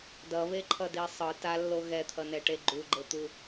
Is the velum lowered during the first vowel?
no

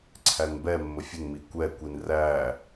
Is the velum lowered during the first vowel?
no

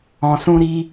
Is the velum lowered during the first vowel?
yes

